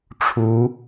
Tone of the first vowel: rising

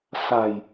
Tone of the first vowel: low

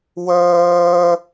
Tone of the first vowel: high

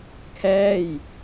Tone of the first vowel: falling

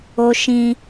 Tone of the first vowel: high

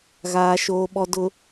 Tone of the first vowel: low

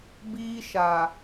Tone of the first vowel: high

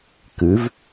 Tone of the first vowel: rising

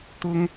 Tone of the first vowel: high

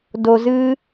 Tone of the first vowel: low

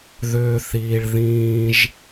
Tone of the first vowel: low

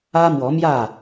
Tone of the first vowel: high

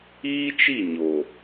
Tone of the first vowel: high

